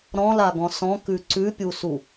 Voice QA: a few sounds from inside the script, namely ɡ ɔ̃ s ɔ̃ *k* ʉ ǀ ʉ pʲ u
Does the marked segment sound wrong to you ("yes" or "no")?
no